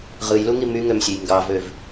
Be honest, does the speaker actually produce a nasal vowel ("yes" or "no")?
no